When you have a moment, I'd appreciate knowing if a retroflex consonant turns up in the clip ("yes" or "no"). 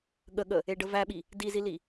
yes